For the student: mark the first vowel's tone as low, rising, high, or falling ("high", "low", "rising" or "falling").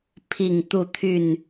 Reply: falling